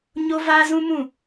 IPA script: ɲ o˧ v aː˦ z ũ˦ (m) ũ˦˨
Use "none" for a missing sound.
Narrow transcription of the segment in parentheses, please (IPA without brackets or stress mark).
m